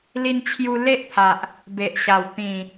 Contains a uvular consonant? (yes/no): no